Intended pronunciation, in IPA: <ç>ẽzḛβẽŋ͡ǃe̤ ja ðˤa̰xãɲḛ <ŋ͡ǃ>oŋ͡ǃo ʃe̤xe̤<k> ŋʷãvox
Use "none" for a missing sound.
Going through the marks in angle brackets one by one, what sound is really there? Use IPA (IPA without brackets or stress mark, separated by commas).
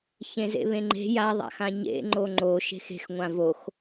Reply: ç, ŋ͡ǃ, x